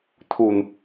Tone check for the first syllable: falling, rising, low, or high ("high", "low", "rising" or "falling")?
low